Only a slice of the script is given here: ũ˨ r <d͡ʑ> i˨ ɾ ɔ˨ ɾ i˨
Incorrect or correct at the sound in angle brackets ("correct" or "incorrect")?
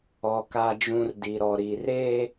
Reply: incorrect